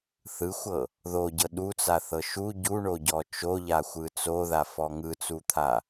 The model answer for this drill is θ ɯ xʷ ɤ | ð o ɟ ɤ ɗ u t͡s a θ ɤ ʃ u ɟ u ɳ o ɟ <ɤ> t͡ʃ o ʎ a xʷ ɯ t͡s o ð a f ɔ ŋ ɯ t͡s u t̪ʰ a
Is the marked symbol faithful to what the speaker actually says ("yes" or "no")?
no